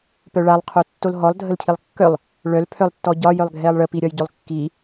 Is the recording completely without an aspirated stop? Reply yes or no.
no